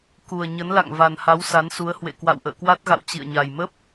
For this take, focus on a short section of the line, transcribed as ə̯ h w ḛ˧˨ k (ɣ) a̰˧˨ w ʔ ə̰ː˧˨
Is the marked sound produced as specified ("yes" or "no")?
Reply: no